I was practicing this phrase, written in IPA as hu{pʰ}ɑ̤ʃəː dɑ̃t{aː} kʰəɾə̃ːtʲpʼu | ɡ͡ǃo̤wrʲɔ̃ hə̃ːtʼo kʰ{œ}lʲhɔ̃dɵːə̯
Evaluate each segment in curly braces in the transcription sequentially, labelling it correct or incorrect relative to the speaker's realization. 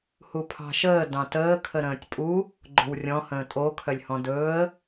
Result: correct, incorrect: əː, correct

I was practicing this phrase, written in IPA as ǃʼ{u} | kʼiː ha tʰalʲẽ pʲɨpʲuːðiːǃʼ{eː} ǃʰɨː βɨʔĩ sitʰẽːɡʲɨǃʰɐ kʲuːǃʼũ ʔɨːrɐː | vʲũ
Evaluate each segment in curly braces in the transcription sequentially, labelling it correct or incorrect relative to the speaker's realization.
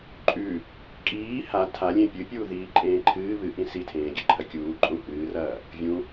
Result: incorrect: ʉ, incorrect: ẽː

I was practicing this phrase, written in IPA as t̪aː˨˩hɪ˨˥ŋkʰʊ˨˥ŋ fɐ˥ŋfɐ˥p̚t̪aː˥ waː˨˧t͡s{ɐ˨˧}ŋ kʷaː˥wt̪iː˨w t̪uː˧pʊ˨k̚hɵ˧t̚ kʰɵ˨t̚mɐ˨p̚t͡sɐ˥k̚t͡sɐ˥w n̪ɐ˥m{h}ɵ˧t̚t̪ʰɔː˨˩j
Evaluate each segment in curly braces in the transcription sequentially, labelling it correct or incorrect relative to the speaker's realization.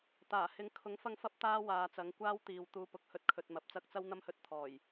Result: incorrect: ɐ˨˥, correct

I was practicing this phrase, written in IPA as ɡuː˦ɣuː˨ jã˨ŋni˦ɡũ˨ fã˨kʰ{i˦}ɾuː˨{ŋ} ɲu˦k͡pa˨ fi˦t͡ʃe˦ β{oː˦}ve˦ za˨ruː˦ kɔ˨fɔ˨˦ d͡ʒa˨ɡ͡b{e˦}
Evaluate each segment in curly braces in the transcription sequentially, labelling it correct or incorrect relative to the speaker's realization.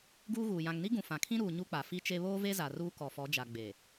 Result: incorrect: ĩ˦, incorrect: none, correct, incorrect: e˨

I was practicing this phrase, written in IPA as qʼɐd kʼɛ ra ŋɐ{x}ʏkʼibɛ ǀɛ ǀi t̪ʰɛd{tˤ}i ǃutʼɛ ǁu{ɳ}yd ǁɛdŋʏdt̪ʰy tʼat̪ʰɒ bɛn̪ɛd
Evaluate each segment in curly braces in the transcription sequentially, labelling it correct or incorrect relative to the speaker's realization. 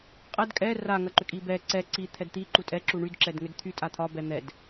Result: incorrect: ǃ, incorrect: t̪, correct

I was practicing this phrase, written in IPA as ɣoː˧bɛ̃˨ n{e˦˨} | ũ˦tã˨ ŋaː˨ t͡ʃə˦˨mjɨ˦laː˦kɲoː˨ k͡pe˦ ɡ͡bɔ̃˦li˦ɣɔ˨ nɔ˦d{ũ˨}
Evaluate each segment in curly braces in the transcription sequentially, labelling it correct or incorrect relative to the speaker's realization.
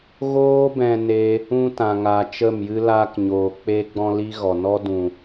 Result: incorrect: e˦, correct

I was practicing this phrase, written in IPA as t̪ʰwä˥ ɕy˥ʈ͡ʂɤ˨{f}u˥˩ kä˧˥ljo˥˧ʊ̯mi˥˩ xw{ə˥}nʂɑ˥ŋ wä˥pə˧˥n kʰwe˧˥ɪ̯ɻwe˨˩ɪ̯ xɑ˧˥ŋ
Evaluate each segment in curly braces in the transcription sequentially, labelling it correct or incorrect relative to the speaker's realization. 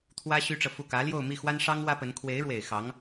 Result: correct, incorrect: a˥

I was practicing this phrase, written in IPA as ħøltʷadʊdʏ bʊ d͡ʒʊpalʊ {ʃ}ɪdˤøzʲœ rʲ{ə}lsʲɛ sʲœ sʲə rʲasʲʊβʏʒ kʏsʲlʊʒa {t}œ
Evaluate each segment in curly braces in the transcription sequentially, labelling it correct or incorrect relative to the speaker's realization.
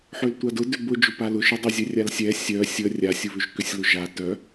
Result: correct, incorrect: a, correct

